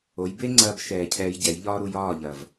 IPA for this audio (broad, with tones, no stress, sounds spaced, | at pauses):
o˩˧ j b e˥ ŋ͡ǀ ɐː˧ b ʃ ɛː˨˩ cʰ ɛː˧ j ɟ ɛ˩˧ j ʎ ɒː˥ ɾ u˧ j ɒː˥˨ ʎ ɐː˨˩ v